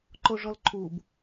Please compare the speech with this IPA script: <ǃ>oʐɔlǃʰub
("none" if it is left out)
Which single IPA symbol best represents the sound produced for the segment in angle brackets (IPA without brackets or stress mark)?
ǃ